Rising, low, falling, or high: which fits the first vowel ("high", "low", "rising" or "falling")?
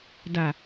low